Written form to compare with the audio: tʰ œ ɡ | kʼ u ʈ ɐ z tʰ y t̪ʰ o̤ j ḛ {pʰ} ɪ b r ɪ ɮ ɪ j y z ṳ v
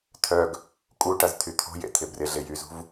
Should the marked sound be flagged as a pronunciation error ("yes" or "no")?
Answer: yes